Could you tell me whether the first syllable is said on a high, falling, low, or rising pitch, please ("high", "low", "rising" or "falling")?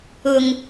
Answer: low